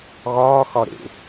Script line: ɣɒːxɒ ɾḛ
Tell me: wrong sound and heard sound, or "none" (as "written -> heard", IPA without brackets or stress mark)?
none